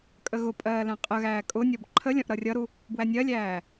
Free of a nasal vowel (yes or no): no